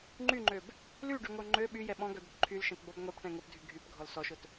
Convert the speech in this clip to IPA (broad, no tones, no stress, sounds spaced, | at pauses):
ŋ͡ǃ y ŋ͡ǃ ø b | l y ɖ y ŋʷ œ ŋ͡ǃ ø ɓ y j ɛ ɓ ɔ̃ ɡ œ d̪ ʊ t ǃʰ y l ʃ ɛ̃ t b ɔ b ŋʷ ɛ p ʈ ɛ̃ ŋ ʊ p dʱ y ɡʱ y p ɡʱ ɔ l s ɔ ʃ ʊ t